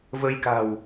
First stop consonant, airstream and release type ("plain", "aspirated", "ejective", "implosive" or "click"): plain